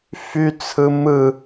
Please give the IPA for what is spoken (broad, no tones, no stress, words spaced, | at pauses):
fyt͡sʰɯ mɯ